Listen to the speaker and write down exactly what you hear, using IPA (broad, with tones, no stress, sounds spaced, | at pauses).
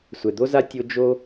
sʷ ɛ˨ d̪ o˦ z a˦ tʲ o˦ d͡ʒ o˦